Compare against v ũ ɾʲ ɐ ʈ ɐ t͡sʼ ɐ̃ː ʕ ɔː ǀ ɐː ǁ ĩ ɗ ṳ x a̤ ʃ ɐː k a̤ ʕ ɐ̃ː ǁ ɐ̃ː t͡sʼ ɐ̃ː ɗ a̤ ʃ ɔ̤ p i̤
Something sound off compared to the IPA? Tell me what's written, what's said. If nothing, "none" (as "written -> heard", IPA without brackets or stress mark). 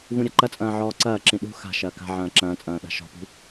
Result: ʈ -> ǃ